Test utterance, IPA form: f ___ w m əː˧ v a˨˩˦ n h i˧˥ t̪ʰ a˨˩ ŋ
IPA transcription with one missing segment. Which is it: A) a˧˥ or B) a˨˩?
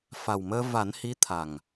B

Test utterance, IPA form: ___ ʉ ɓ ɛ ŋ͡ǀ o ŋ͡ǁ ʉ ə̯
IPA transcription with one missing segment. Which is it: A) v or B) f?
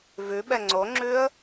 A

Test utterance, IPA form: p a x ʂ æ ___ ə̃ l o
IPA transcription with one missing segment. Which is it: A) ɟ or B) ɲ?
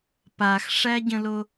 A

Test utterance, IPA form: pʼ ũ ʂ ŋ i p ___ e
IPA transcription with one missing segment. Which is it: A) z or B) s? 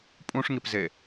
A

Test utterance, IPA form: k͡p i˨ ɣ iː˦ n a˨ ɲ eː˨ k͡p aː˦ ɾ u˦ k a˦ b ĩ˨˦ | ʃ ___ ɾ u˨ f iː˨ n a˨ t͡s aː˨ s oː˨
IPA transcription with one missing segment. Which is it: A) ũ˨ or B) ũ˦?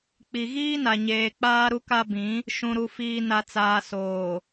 A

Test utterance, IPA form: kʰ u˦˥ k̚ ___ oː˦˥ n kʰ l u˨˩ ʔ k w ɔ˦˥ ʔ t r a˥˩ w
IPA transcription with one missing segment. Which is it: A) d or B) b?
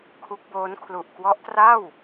B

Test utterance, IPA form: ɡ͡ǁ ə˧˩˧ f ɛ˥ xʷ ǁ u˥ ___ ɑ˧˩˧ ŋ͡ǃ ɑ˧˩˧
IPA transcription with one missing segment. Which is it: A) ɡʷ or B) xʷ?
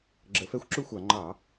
B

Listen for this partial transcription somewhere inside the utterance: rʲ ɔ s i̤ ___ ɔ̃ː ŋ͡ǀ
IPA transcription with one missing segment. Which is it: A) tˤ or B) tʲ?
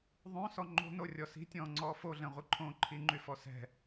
B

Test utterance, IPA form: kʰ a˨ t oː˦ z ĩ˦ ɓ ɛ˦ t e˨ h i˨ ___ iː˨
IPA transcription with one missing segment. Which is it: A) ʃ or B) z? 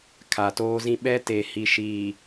A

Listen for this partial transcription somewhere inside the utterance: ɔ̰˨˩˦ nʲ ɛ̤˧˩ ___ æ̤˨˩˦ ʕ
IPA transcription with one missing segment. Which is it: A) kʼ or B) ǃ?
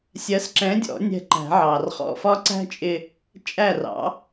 B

